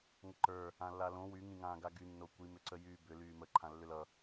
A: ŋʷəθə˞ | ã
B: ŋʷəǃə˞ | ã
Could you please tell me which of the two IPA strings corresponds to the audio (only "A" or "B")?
B